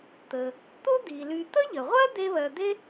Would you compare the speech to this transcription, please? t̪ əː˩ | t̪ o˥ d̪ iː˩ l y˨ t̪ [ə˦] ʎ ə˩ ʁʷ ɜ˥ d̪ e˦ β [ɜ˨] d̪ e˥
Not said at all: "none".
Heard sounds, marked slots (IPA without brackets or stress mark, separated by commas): ə˥, ɜ˨